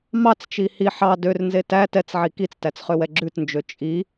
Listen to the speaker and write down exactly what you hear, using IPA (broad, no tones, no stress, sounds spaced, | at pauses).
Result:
m ɑ t͡s t͡ʃ i h i ħ ɑ d ø r n z e t æ t ɛ t͡s ʕ i k i t͡s t æ t͡s χ ø w ɛ ɡ͡ǁ ʉ t n d͡ʒ ø t͡ʃʼ i